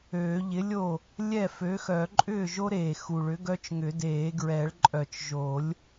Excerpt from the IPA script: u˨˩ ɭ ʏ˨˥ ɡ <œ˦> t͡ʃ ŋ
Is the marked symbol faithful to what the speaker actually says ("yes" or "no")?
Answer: yes